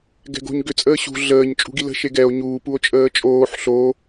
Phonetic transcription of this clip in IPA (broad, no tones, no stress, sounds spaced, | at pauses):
ɡ ɛ̤ ɡ o̤ ɲ ɡ ʏ t͡sʼ əː ɕ ṳ ɮ əː ɲ t͡ʃʼ ṳ ɡ i l ə̤ ʃ e ɡ ɛ o̯ ɲ uː p u o̯ t͡ʃʼ əː t͡ʃʼ oː ħ ɬ o